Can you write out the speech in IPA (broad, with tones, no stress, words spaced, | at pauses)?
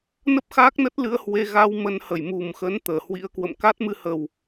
nə˦˥p̚xaː˦˥k̚nə˦˥t̚lɨ˧ə̯ hwe˧ɣa˧w mə˨˦nhə˧˩j mu˨˩mxə˨˦n t̪əː˧˩hwḭ˧˥ə̯kwə̰˧˨m ka˦˥t̚mɨ˧hə˨˩w